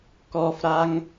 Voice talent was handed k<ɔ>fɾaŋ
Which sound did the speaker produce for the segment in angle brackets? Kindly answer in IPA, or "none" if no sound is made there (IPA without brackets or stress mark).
ɔ